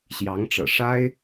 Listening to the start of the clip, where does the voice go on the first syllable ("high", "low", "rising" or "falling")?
rising